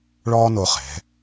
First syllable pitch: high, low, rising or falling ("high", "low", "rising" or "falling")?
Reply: high